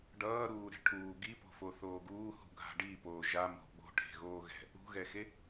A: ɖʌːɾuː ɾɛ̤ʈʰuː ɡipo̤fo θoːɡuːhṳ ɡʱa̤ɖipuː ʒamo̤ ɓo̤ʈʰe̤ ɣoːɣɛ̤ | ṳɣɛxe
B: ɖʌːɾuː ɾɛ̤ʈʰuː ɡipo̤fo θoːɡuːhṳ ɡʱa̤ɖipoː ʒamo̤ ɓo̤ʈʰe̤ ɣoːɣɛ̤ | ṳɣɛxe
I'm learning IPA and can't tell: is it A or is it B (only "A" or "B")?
B